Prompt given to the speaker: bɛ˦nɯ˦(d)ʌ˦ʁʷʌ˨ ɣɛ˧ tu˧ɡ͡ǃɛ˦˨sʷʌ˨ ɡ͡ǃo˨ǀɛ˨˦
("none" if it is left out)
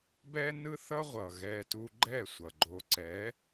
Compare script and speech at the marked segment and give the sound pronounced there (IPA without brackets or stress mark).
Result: θ